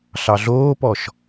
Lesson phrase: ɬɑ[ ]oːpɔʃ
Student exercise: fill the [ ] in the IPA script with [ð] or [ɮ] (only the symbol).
ɮ